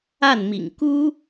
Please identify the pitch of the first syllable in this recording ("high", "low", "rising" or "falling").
falling